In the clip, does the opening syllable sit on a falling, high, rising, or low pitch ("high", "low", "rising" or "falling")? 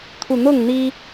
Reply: low